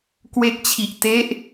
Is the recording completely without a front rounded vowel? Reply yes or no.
yes